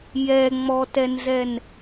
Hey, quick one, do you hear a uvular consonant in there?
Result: no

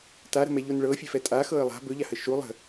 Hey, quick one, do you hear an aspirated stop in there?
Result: no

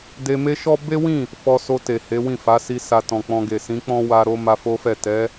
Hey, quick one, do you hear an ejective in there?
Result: no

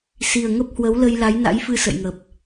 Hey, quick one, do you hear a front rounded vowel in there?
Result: no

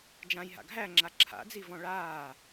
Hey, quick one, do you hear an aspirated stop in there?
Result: yes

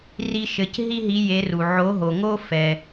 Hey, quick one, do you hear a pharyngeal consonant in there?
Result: yes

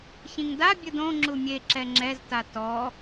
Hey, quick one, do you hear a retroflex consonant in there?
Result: no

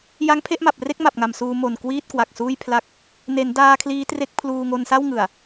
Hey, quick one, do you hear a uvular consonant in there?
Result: no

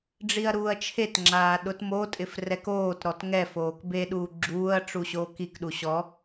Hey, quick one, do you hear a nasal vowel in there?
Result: no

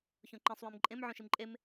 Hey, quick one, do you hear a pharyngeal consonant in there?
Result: yes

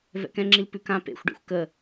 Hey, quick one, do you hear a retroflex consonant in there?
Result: yes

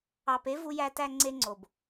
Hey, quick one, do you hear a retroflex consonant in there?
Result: no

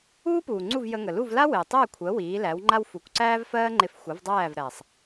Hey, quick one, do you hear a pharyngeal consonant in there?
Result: no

